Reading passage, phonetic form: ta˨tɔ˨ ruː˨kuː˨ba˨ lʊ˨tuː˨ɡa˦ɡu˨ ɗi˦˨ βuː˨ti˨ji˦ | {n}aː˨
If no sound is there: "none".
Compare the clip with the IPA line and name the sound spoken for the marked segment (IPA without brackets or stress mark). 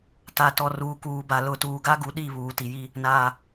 n